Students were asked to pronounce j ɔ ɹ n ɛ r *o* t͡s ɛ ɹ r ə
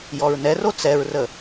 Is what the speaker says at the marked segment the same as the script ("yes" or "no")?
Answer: yes